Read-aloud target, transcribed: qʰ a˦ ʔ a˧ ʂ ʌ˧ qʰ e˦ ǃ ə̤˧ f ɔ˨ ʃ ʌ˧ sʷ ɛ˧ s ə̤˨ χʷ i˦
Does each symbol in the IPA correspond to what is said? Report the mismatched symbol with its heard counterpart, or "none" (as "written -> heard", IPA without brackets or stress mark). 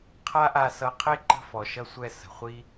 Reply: ʂ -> s